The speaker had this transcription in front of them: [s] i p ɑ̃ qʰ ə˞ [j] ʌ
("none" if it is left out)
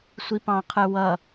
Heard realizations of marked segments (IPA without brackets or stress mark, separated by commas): sʷ, w